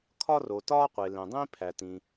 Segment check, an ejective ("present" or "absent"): absent